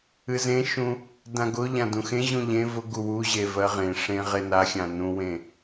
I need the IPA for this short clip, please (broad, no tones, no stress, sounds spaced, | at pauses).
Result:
ɨ z ẽ ʃ ũ | d ã ɡ ʊ ʎ ã d ũ x ẽ ʑ ũ ʎ ẽ v ʊ ɡ u w u ʑ e v ɜ ʁ ẽ ʂ ẽ ʁ e n a xʲ ã n ũ w ẽ